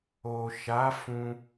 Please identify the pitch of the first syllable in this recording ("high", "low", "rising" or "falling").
low